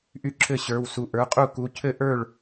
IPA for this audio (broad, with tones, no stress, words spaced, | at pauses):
ʔy˥˩ǁʰɘ˥˩ɕə˞˩˧˩wsu˩˧˩ ʔə˞˩˧˩qʼu˥˩ku˩˧˩ cʰɘ˥˩ʔə˞˥˩ɭ